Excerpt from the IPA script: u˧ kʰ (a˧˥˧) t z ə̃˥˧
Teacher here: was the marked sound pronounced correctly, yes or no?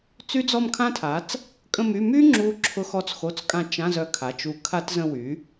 no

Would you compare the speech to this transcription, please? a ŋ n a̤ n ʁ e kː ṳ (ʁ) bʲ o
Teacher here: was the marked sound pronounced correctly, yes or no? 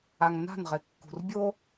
no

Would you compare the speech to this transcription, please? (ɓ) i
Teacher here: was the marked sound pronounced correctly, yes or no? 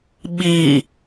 yes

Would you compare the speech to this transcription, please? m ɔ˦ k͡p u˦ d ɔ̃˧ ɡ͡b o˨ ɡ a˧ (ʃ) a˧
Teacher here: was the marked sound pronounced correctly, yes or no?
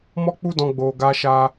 yes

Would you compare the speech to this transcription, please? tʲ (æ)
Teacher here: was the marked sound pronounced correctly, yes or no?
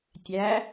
yes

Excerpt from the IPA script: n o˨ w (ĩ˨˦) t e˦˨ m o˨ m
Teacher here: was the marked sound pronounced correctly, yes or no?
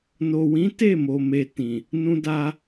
yes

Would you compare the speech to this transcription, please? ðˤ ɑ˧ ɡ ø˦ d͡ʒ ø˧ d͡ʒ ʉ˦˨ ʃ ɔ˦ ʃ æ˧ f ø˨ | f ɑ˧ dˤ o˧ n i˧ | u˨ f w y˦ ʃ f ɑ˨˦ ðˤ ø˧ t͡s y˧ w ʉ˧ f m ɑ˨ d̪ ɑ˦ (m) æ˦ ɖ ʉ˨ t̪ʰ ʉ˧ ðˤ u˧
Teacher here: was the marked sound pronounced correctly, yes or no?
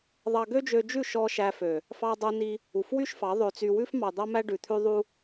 yes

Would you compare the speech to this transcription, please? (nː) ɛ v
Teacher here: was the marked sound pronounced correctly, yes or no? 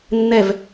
yes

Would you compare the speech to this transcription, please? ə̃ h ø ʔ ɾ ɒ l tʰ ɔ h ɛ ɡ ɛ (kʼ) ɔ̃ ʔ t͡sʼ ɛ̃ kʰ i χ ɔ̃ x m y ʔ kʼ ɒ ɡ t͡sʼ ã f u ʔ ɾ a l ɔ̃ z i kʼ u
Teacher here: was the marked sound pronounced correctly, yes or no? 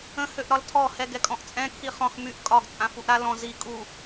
yes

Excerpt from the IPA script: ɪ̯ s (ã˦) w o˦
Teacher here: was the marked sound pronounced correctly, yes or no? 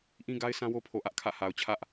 yes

